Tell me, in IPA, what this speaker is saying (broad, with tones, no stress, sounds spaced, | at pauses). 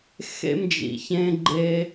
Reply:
x ḛ˦ m d͡ʒ ḭ˨ ç ẽ˦ ɡ͡ǃ e˦